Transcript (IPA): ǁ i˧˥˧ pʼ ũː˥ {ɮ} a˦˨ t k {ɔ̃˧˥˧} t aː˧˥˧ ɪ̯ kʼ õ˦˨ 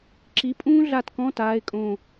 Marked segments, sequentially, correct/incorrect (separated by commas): correct, correct